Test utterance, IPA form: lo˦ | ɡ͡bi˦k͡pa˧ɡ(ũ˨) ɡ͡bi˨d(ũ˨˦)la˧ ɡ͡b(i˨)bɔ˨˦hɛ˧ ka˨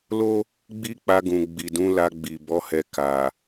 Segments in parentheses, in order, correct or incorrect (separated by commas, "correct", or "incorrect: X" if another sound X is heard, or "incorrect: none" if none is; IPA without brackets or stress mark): correct, correct, correct